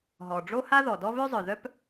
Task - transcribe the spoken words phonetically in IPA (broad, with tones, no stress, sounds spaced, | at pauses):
ɦ ɔ˩ ɖ͡ʐ o˥ h a˥ ð ɔ˩ d ɔ˥ β ø˥ zˤ œ˩ ð œ˥ p